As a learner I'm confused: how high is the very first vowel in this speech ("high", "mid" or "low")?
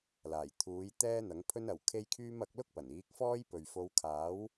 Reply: low